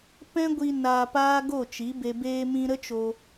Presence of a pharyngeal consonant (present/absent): absent